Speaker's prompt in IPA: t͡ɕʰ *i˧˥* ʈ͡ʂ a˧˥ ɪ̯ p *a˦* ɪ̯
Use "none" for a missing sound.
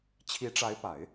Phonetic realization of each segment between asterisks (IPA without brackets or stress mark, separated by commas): i˧˥, a˨˩˦